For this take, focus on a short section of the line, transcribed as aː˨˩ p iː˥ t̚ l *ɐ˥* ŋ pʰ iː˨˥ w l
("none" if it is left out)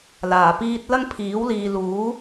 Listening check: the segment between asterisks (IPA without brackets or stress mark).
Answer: ɐ˥